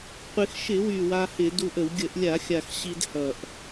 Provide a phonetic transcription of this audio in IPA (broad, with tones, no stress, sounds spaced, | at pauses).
qʷ ɪ˧ x ʃ ɪ˧˩˧ w y˨˩ w a˧ h ɪ˧˩˧ d u˧ ʔ ə˧˩˧ w ɡʲ ə˧˩˧ ʔ lʲ a˧˩˧ xʲ a˨˩ x ɕ i˧ d h ʌ˨˩ ʔ